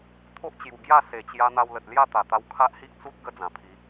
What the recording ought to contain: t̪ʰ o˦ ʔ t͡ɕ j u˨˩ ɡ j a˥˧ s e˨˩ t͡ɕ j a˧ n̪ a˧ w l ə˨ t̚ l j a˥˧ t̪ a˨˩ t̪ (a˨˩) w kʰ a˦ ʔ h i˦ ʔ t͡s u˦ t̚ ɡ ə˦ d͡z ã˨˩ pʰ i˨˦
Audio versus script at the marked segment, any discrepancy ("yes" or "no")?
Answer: yes